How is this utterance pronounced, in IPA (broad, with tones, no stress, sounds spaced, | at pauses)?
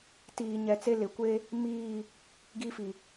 t iː˨ ɲ ɛ˨ t͡s e˦ l ɪ˨ kʷ e˦ | m iː˦˨ | ɡ i˦ f i˨